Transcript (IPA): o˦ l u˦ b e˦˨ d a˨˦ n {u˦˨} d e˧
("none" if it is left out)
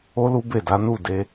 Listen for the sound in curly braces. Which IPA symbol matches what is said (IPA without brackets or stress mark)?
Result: u˦˨